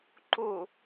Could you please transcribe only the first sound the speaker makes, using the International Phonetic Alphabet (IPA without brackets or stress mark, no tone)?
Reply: ǃ